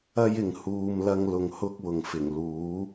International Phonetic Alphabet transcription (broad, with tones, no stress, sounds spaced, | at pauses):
ɐ˥ j ɪ˨ ŋ h uː˧ m l ɐ˧ ŋ l ʊ˨ ŋ h ʊ˥ k̚ w ʊ˨ ŋ f ɪ˨˩ ŋ l uː˨˥